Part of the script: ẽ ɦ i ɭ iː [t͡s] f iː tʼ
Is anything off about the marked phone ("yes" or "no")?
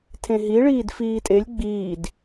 yes